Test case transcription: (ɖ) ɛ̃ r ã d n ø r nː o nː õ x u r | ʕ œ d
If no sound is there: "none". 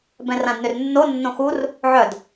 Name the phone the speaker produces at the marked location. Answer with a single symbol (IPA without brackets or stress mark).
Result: b